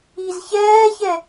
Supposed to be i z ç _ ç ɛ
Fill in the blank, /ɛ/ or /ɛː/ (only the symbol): ɛː